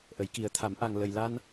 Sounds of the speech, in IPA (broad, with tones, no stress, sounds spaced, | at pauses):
ʔ ə˨˩˦ j k i˨˩˦ ə̯ t̪ʰ a˨˩˦ m ʔ a˨˩ ŋ l ə˨˩ j l a˧ n